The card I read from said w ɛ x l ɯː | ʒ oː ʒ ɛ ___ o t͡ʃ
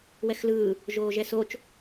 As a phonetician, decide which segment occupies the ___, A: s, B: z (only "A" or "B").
A